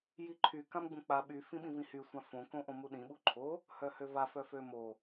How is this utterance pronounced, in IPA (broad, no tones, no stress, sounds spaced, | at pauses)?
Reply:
j i ǃʰ y k ã m ɡ͡b ũ k͡p a ɓ y f ĩ ɓ ĩ v ĩ h y sʷ ã f õ k õ ʔ õ m u ɗ ĩ ɓ u ǃʰ o | h œ h ø v a f œ f ø m o